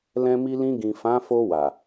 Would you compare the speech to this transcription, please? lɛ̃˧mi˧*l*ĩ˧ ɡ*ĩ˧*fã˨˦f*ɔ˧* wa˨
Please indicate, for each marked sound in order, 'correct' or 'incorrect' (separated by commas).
correct, incorrect, incorrect